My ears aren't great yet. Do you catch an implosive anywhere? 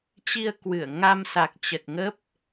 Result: no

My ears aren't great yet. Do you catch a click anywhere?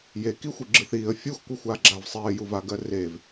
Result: yes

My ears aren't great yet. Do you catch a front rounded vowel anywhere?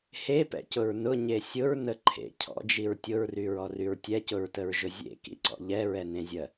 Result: yes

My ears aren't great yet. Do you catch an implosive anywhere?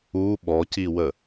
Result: yes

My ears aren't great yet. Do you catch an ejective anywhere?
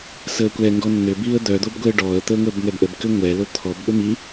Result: no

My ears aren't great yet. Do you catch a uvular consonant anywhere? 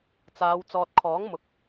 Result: no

